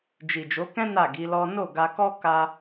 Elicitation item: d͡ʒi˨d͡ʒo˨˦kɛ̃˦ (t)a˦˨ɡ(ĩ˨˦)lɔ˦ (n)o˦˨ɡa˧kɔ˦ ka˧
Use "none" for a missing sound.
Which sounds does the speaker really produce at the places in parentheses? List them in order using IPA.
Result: n, i˨˦, n

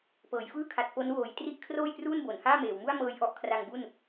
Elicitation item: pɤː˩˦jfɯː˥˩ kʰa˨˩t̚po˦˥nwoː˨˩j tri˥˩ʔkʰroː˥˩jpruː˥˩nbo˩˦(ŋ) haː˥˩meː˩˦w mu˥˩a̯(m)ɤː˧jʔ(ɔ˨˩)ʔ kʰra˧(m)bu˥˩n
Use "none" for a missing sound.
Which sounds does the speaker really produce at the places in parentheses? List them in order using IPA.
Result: n, m, ɔ˦˥, ŋ

